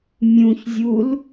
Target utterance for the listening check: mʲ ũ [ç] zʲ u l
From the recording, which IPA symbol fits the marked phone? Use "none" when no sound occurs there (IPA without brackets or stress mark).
ç